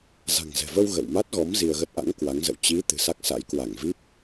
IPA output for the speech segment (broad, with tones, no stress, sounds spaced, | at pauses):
z a̤˨˩ ŋ z ɛ̤˨˩ v ə˧ w ɣ ə̰˧˨ w m a˦˥ t̚ ɣ ɔ˨˦ m z i˧ ə̯ ɣ ə˦˥ t̚ ʔ a̰˧˥ ŋ k w a˨˦ ŋ z ə̰˧˨ w t͡ɕ i˨˦ t̪ ɨ̤˨˩ s a˦˥ k̚ s a̰˧˥ j k w a˧˩ ŋ v i˦˥ p̚